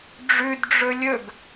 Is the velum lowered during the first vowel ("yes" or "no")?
no